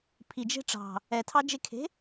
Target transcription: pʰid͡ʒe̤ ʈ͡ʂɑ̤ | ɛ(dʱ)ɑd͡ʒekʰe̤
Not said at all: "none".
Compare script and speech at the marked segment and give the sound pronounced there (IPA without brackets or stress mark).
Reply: tʰ